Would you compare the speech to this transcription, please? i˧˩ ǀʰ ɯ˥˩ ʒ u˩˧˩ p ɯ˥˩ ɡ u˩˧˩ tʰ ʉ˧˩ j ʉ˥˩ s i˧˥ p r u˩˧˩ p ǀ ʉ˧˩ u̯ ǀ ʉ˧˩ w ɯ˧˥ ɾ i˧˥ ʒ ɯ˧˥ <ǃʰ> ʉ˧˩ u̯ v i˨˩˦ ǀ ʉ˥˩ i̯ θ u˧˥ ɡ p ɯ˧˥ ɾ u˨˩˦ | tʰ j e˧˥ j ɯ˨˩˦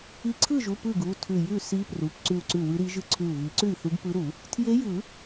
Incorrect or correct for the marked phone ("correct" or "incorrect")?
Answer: incorrect